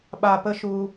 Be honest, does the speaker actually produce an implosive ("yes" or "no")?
yes